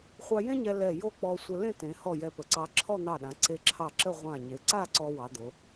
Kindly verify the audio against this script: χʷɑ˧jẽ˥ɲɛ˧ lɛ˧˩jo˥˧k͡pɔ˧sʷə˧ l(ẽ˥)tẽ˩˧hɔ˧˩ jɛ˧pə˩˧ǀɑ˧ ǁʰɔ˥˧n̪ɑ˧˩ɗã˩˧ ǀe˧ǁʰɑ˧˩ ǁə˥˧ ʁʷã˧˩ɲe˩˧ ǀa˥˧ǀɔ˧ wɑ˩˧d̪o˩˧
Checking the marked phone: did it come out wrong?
yes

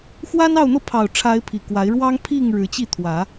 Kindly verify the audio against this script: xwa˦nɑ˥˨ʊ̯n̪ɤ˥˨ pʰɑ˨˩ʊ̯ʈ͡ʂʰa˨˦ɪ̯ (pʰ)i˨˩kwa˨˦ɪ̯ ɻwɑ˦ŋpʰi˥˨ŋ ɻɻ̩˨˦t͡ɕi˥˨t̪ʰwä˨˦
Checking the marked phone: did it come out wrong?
no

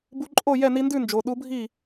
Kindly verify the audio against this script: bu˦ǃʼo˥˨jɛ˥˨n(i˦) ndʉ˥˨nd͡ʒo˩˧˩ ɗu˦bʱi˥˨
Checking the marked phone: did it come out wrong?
no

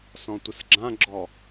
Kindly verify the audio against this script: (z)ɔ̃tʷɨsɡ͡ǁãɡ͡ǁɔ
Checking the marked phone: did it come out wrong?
yes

